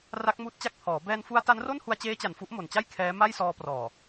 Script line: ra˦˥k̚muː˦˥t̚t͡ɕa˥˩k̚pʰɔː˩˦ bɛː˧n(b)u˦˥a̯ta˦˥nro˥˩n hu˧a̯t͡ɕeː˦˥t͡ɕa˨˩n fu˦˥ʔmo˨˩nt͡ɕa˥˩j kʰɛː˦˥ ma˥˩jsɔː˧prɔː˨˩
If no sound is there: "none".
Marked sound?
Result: f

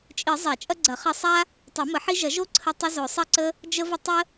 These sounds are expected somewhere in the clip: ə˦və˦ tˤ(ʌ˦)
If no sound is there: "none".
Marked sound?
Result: ə˦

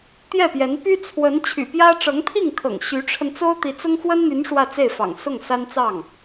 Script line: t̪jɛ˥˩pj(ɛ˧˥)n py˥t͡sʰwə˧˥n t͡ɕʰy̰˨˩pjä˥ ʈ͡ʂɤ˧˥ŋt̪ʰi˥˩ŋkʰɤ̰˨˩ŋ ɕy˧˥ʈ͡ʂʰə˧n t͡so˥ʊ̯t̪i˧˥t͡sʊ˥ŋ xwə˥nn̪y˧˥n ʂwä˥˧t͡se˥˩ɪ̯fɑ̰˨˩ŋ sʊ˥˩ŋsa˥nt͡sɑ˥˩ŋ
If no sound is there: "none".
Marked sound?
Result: ɛ˧˥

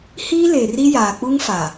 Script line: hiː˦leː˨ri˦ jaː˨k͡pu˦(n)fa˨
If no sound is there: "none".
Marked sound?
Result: ŋ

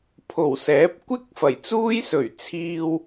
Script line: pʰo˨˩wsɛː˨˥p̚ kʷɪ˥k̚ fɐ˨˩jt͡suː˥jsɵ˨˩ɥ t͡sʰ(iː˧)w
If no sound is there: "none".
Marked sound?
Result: iː˧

